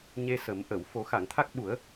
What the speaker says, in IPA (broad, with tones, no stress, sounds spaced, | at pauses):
ɲ e˧ s ə˨˩˦ m ʔ ə˨˩˨ w f o˨˩˦ x a˨˩˨ ŋ t̪ʰ a˦˥ k̚ ɓ u˨˩˦ ə̯